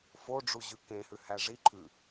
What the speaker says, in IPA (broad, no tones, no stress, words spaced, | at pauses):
foɖ͡ʐuʑʉ kẽhʉhæ ʐi ǃʰʉ